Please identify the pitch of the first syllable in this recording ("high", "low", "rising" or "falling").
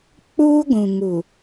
high